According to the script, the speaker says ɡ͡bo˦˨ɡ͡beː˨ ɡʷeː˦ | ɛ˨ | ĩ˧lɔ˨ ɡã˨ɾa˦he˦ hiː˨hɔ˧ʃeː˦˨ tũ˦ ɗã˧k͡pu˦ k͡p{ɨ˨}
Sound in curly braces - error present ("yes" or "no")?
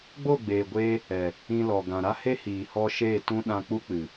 no